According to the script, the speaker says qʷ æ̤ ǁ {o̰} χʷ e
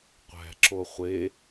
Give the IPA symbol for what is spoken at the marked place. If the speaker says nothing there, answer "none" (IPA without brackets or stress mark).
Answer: o